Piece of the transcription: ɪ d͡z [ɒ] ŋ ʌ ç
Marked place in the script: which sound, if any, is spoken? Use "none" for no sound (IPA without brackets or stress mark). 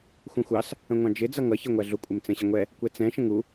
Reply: ʌ